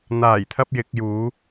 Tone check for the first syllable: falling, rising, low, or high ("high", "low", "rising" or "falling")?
low